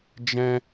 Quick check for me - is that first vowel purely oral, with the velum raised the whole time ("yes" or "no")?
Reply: no